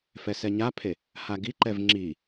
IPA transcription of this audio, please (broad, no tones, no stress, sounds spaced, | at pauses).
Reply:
f ɛ s ɛ ɲ a pʰ e | h a ɡ i ǃ ɛ v ŋ͡ǁ i